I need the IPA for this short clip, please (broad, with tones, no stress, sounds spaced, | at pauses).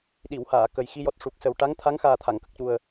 ɗ i˨˩˨ w h aː˨˩˨ k ə˨˩ j x i˧ j ɔ˨˩ t̚ ʂ u˨˩ k̚ s ə˨˩ w ʈ a˧˥ ŋ t̪ʰ a˧˥ ŋ x aː˨˩ t̪ʰ a˨˩˨ ŋ k ə˨˩ k̚ c u˨˩ ə̯